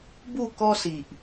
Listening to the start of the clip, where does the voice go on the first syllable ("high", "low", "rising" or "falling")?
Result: falling